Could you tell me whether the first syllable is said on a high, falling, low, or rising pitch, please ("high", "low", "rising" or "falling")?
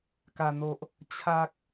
low